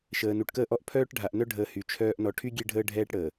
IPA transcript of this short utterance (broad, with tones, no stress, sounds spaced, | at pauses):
ʃ əː˨ n u˨ ʈ k əː˦ ʔ ɔ˦ ʔ pʰ œː˦ ʈ ɖʱ a˨ ʔ n œ˦ ɖʱ əː˨ h y˨ t͡ʃʰ œː˦ ʔ n ɔ˨ ʈʰ y˦ ɡʲ e˦ ɖʱ əː˦ ɖʱ ɛː˦ ʈ ɽ əː˨